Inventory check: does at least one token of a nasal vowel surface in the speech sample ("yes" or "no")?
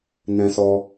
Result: yes